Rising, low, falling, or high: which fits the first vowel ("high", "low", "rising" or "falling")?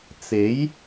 rising